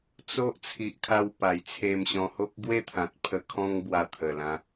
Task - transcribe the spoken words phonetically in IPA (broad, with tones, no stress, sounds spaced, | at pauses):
t͡s o˦ ʔ t͡sʰ i˨ ʔ kʰ a˧ w p a˨˩ j t͡sʰ e˧ m ɕ ɔ̃˧ h o˦ k̚ ɡ w e˥˧ t̪ʰ ã˨ t̚ pʰ ə˧ kʰ ɔ̃˦ ŋ b w a˧ t̪ʰ ə˨˩ l ã˧